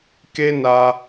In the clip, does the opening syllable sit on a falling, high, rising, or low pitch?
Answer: high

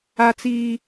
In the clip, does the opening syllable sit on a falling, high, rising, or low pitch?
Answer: high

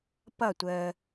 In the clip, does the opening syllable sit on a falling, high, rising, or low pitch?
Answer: falling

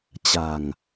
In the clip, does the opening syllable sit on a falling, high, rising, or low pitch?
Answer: low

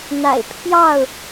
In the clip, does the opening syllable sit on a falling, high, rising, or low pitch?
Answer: low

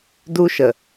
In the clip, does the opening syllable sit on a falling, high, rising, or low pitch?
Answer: high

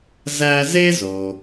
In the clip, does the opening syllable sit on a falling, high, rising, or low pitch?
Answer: high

